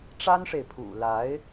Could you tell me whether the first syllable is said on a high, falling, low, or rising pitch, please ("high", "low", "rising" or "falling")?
high